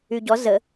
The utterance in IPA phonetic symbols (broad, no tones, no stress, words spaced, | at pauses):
yɟɔ zə